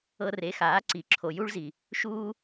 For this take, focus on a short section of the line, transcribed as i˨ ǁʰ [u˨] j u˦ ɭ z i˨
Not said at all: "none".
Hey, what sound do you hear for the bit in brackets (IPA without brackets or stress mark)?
o˨